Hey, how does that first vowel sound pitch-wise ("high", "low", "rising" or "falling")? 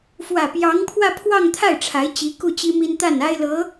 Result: low